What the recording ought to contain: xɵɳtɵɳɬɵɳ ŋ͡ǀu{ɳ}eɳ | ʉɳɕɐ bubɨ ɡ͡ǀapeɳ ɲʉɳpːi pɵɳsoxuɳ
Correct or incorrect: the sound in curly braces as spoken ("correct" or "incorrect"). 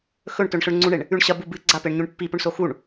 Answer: correct